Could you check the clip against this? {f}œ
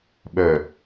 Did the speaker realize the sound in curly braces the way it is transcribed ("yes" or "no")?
no